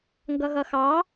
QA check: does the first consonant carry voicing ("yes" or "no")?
yes